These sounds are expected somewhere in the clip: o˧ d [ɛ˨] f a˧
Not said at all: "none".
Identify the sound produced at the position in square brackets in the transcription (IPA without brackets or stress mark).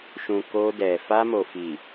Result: ɛ˨